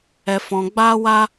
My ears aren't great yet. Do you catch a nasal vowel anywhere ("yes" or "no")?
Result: yes